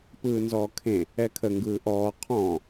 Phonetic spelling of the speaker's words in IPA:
pɯːnzɔːkʰẽ | ɛkʰə ŋɡɯːʔɔː qʰɔ̃

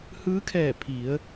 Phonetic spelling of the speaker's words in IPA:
hɯː˧˥kʰɛː˧˩ pʰi˩˧ə̯

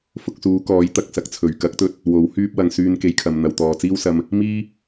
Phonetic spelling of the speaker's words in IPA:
fʊ˧k̚suː˨˧kɔː˨˥j t̪ɐ˨k̚sɐ˨˥k̚t͡sʰɵ˨˩ɥ kɐ˨˥k̚t̪ɵ˧t̚ | wo˨˥whyː˥p̚wɐ˨˧ŋ syː˧nke˨jkʰɐ˨m n̪ɐ˨wt̪ɔː˨t͡siː˥wsɐ˧m | miː˥

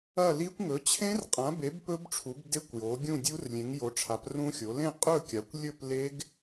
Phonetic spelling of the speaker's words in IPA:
ɐ˥˨li˦˥kʷ ŋɵ˩˥t͡ɕʰẽ˦˥rqʼã˩˥be˩˥b pɵ˦˥bʈ͡ʂʰu˩˥b de˦˥kʷjo˩˥ɡʲũ˥˨dʲu˦˥r lʲẽ˩˥ŋjo˩˥ʈ͡ʂʰa˩˥p rũ˦˥xʲo˩˥ lẽ˥˨qʼɵ˥˨kʲa˩˥kʷ lʲɵ˥˨p le˦˥ɡ

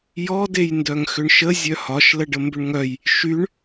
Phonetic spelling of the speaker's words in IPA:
jɔ dejndœŋxʏɳʃə zʲœhɒʃ ləɖəmbʏɳŋœj | ʃyɳ

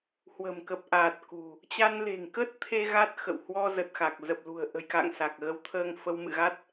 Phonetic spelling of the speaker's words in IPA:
hwə̤˨˩mkə˨˩p̚ʔaː˨˩t̚ kṳ˨˩ | t͡ɕa˧nle̤˨˩ŋkə˦˥t̚t̪ʰe˧ ɣa˦˥t̚xə̰˧˨w hwɔ˧zə˨˩t̚ xa˨˩k̚zə˨˩p̚lṳ˨˩ə̯ ʔə̤˨˩jka̰˧˨ŋ sa˨˩k̚ɣə˨˦w t̪ʰəː˧ŋfə˧wmɨ̰˧˨ɣa˦˥t̚

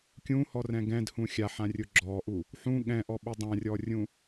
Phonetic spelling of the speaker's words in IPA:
kʲũhɔrɛ̃ ɡɛ̃dhũ xʲaħãrʲʊ ɡ͡ǁɔʔu | ħũ ɠɛ̃ʔɔɓʊ dˤãrʲɔrʲũ

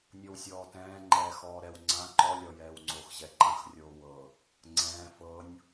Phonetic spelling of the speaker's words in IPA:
nʲɤwsʲɔːtɛ̃ː ŋ͡ǃɛːxɔːɾɛw ŋ͡ǀã ǃɔ lʲɔjɛːwŋ͡ǀox ʑɛǃãx rʲoːwɤ | ŋ͡ǀɛ̃ː fɤnʲ

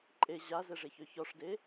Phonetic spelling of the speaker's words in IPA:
ǃʼe ʑazɛʐeçø çɔʂde

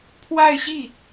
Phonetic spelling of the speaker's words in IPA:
pʰwa˥˧ɪ̯ɕi˥˩

